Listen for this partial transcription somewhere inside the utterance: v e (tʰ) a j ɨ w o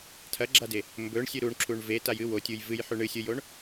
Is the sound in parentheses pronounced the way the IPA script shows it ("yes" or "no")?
no